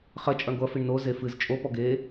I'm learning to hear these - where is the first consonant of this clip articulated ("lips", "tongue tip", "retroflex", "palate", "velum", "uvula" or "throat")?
uvula